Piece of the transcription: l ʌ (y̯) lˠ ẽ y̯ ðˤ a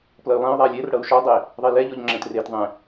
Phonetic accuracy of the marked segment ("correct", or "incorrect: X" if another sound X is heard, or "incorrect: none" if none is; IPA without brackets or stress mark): correct